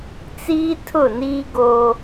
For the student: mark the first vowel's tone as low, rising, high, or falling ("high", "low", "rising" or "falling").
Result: high